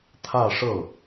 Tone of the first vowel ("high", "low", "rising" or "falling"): falling